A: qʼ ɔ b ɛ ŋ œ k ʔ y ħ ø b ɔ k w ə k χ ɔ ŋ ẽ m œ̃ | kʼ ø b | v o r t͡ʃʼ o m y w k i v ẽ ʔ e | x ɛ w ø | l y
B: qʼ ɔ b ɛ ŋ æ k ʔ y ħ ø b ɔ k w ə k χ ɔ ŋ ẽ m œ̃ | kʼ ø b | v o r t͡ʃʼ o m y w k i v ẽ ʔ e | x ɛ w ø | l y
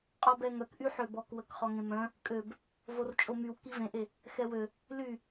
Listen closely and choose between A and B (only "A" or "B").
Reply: A